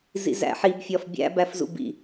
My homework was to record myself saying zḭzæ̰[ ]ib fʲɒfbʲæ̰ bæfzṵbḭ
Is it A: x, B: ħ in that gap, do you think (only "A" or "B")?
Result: B